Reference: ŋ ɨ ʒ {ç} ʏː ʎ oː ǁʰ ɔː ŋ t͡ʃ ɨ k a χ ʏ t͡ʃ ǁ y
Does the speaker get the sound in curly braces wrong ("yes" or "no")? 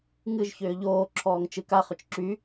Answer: no